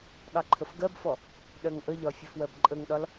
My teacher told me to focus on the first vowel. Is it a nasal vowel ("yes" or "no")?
no